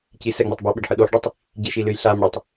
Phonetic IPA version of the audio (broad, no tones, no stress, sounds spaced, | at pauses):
c i s ɛ ŋ͡m ɛ tˤ b o ɓ e ɖ ħ ɨ ɗ o ħ ɖ i tˤ | ɟ i ʃ i l ɨ j ɬ a m ɽ ɘ tˤ